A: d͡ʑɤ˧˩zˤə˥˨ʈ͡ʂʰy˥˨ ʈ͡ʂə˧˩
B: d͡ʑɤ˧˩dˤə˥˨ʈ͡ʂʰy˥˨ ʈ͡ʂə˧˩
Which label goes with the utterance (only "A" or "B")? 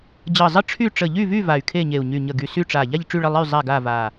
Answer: A